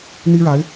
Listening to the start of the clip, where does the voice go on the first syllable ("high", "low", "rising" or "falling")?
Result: high